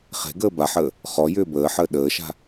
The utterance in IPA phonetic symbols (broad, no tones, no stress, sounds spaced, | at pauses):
χ e̤ ɡ əː b a ħ əː | χ ɔ j ʏː b əː ħ əː ɗ əː ʃ a̤